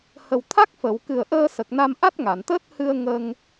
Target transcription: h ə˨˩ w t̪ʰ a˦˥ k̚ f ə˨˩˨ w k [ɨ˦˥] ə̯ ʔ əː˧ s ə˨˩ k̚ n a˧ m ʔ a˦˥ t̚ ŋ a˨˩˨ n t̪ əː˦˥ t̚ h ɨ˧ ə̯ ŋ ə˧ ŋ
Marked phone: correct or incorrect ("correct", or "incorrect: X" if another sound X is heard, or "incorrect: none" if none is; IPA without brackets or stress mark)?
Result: incorrect: ɨ˨˩